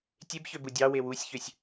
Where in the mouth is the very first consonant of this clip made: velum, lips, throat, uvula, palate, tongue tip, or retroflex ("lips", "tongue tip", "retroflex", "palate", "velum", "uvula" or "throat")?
tongue tip